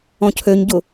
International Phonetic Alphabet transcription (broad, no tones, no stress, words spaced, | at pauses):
ɔ̃cʰøɲ ɟʊ